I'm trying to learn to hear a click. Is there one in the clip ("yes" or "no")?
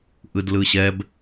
no